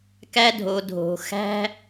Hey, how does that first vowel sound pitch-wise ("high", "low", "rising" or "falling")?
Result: high